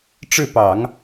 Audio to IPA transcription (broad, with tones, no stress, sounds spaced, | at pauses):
ʈ͡ʂ ɻ̩˥˩ p ɑ˨˩˦ ŋ